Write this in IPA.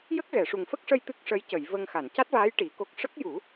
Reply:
j ə˦˥ k̚ ɣ ɛ˨˩˨ ʂ u˨˩ ŋ f ə˦˥ k̚ ʂ ə˧ j t̪ ɨ˦˥ k̚ ʂ ə˧˥ j c ə˨˩˨ j v ə˧ ŋ x a˨˩˨ n c a˦˥ t̚ v aː˧˥ j ʈ i˨˩˦ k o˦˥ k̚ ʂ ə˦˥ k̚ j u˨˩˦

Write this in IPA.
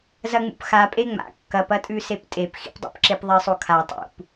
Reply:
z ɐ ŋ͡m ṵ p x a pʼ e ŋ͡m a̰ kː ɐ p ɐ tʼ ʉ s e p tʼ e p x ḭ p dˤ ṵ p ǁ e p ðˤ i sˤ o kʰ a tˤ ṵ p

